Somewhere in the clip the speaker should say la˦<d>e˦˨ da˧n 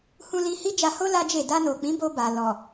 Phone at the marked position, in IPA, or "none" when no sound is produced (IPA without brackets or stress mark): d͡ʒ